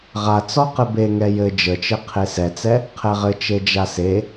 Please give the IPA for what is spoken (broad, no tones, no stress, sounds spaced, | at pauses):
ʁ a t͡s ɔ q ɘ b e ŋ ɛ j ɘ d͡ʒ ə t͡ʃ ɘ qʰ e s ɛ t͡s ɛ | qʰ ɛ ʁ ɘ t͡ʃ e d͡ʒ a s e